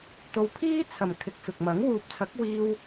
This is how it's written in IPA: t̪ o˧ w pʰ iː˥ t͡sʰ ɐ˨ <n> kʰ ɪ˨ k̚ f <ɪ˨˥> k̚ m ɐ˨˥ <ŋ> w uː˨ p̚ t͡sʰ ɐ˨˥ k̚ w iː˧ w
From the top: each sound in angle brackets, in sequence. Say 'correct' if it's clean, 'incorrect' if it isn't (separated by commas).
incorrect, incorrect, correct